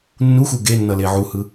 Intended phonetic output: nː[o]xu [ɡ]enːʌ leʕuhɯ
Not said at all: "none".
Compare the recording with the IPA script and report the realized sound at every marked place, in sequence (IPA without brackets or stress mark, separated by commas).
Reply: u, ɡ